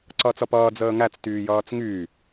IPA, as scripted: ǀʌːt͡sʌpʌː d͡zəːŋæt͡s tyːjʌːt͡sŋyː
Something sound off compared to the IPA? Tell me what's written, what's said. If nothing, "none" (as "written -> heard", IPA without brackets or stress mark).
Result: none